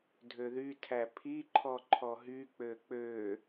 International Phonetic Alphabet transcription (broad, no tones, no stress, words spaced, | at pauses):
dʱøðytʰæ pʰiǃʰɔ ǃʰɔɦyk͡pø k͡pø